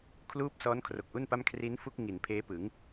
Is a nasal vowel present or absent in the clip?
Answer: absent